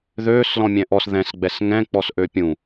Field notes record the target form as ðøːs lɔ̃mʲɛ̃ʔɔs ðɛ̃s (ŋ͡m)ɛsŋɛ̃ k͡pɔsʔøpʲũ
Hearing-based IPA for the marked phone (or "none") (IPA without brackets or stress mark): ɡ͡b